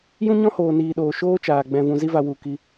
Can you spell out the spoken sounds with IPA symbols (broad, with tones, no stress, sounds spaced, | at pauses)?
j ũ˦ ɲ ɔ̃˦ h oː˨ n iː˨ ɗ oː˨ ʃ oː˦ t͡ʃ aː˨ ɡ͡b ɛ̃˨ v ũ˨ z i˧ v a˨ w u˨ k i˧